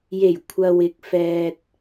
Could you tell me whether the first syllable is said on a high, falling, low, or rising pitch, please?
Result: low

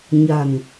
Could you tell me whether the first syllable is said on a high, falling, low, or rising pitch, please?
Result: low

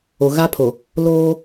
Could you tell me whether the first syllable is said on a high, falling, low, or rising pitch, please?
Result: low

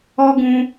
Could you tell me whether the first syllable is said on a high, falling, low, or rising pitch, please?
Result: high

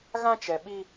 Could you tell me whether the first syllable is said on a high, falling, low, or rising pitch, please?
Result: high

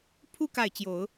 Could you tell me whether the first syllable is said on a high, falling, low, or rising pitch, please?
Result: high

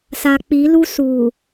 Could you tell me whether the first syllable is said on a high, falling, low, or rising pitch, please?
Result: low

